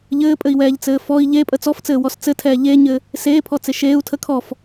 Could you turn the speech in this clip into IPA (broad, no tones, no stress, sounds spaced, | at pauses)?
ʎ ɘː pʼ ɘ i̯ w ɛː ʎ t͡s ɘː f ɔ i̯ ʎ e pʼ ə t͡s ɔ f t͡s ɘː w ɔ s t͡s ɘ tʰ ɛː ʎ e ɲ ɘ | s eː pʰ ɔ t͡s e ʃ eː u̯ tʰ ə kʰ ɔ f